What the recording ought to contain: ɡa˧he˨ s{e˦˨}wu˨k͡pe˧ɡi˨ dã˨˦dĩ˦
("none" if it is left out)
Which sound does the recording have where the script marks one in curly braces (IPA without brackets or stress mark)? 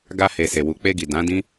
e˨